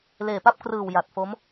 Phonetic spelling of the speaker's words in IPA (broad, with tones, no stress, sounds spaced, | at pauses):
l eː˨˩ p a˥˩ p̚ k r ɯː˨˩ w j a˨˩ t̚ f o˦˥ m